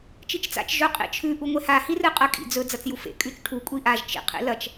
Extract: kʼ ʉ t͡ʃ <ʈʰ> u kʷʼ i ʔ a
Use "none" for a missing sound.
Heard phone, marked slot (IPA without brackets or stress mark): ʈʰ